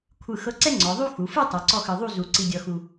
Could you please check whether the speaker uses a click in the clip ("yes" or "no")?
yes